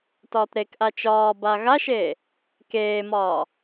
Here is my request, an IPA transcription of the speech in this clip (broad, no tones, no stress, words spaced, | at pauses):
tɒːtɾekʔa t͡ʃɒːba ɣaʃeː | keːmɒː